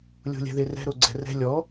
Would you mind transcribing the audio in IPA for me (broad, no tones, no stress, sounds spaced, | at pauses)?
lʲ o̤ lʲ ɛ̤ ð e r ɛ̤ ɾ o ɡ͡ǀ ɛ̤ r ɛ̤ lʲ ɔ